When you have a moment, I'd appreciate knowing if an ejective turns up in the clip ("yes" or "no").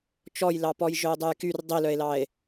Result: no